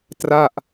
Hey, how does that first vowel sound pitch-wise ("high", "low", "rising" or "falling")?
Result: falling